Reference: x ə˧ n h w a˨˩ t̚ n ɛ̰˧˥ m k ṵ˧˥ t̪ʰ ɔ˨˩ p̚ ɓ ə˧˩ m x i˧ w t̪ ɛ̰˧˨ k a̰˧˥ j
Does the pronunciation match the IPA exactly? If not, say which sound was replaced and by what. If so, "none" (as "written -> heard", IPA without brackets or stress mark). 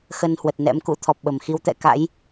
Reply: a˨˩ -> ə˨˩